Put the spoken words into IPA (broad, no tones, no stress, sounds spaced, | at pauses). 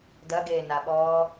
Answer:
d ɐ ɡ eː n a ɓ ɔː